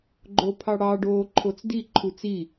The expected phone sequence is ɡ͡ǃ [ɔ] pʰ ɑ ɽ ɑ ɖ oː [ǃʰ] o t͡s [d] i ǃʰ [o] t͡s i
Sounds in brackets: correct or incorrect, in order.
incorrect, correct, correct, incorrect

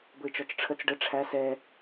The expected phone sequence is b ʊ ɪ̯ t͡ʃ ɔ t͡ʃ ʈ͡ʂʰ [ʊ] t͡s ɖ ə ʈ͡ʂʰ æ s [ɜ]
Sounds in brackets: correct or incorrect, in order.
incorrect, incorrect

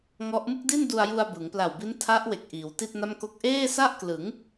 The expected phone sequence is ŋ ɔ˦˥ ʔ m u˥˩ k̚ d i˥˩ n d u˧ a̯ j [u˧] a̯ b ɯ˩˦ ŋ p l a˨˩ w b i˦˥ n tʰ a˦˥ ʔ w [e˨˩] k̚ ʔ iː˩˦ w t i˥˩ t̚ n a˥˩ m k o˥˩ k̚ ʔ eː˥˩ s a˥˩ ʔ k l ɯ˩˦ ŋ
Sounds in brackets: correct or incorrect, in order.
correct, correct

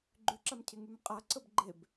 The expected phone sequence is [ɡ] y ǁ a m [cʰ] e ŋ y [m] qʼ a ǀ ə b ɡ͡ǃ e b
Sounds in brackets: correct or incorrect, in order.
incorrect, correct, correct

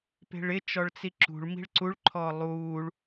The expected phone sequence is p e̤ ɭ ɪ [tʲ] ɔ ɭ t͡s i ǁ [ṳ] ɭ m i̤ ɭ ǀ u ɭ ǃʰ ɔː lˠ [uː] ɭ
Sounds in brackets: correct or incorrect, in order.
incorrect, correct, correct

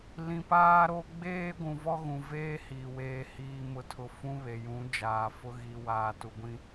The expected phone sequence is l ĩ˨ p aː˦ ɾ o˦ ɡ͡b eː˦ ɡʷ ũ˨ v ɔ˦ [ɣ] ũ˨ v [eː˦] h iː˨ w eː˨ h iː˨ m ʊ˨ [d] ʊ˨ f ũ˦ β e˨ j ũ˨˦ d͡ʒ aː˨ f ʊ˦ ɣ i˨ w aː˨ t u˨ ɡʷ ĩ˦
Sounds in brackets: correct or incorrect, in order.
correct, correct, incorrect

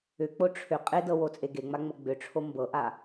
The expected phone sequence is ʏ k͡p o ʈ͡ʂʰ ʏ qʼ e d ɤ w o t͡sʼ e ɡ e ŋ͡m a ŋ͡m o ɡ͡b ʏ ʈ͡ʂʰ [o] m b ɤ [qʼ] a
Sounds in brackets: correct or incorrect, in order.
correct, incorrect

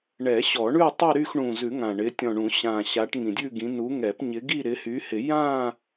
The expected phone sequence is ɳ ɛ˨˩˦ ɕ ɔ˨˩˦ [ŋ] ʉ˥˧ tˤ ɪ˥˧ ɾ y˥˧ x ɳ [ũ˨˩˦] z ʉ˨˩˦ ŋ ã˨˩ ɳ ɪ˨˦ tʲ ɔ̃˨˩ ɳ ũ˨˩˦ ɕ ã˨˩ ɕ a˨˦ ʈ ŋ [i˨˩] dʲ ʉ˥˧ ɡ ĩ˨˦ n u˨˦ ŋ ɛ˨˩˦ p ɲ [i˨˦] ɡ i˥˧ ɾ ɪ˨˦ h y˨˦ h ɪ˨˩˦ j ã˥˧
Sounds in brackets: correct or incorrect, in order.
incorrect, incorrect, incorrect, incorrect

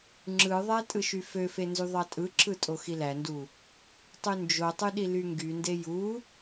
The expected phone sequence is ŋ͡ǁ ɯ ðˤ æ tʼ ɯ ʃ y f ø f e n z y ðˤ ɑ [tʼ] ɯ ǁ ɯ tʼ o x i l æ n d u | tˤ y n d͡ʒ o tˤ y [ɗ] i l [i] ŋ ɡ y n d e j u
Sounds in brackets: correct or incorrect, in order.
correct, correct, incorrect

